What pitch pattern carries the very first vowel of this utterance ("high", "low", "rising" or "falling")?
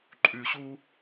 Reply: low